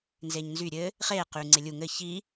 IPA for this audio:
nzeɲnzy ɾʲɘ | χeː qyːŋ͡ǀelʲu ŋɘ çi

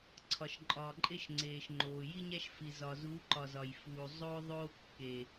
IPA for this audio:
ǀʰɒ˨ʃǃʼɒː˨ǃʼe˦ʃ ŋ͡ǀeː˨ʃŋ͡ǃoː˨ ji˦ɲæ˦ʃ fi˨ zɒ˨zuː˨˦ǃɒ˨ zɒ˨jfuː˨ zˤoː˦ ðˤoː˦kːe˨

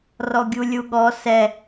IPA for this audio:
rɔɡʲulʲuɠɔ sɛ

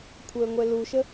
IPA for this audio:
kʷʰəːŋʷɛluʃə

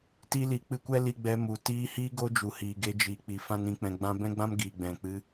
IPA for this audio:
ti˧li˨k͡pɨ˧kʷɛ˦ li˧ɡ͡bɛ˧mu˨ tiː˧hi˦ ɡo˦d͡ʒu˨hiː˨ɡe˧ d͡ʒiː˨k͡pi˨ fã˦nĩ˧k͡pɛ̃˧ ɡ͡bã˦ bɛ̃˦ɡ͡bã˦m ɡiː˨ɡ͡bɛ̃˨k͡pɨ˧

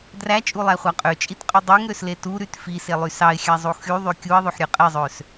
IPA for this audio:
dræt͡ʃʼulˠæχʷɑ qʼøt͡ʃʼitqʼy dˤyŋɾøsle tuɾyt fiselˠy sɑɪ̯xʲæzˤu xyðˤy kʲuɪ̯ðˤøħɾʲø qʼezˤøs

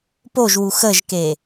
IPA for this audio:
poʒwu xəʒke

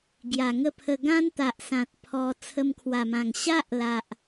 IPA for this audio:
ɡja˨˩ŋə˦pʰə˧ ɡã˦nt̪a˨ʔsã˨t̚ pʰɔ˧ t͡sʰə˧mkʰwa˨˩mã˨˩ŋ ɕa˦ʔla˨ʔ

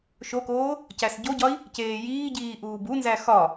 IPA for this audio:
ʃokoː | cæsɟoɟɒi̯ | ceːjiːɟiː ʔuːbunzæ xɒ

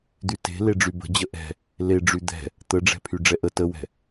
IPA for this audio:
d̪yte̤ leɖ͡ʐybə̤d͡ʑə ʔɛ̤ | leɖ͡ʐy d̪ɛ̤ | t̪əɖ͡ʐɛ̤ pʰyɖ͡ʐɛʔə təwɛ̤

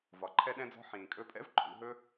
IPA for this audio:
vɒ˩ǃʰɛ˧ɗɛ̃˧d͡zɔ̤˧ ħĩː˩kʼɵ˧pʼɛ̰˥v ǃʰṵ˧ɦɵ˥

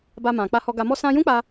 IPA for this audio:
ba˧mã˨ k͡pa˧hɔ˧ɡa˧ mɔ˧sã˧jũ˦k͡pa˧

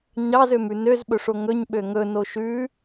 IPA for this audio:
ɲɑzømʉ nøzɓɵʂo ŋɵɲɓø ŋɵno ʃʉ

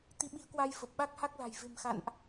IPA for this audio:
t̪i˨˦ɓi˨˦ə̯kwa˧j fə˨˩p̚ɓa˦˥k̚ha˦˥k̚la̤˨˩j ve̤˨˩mxa̰˧˨nʔ

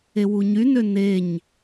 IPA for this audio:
ewuɲynø neɲ

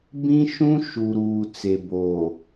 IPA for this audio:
bĩ˦ʃũ˦ ʃu˨ɾuː˨ t͡se˨boː˨

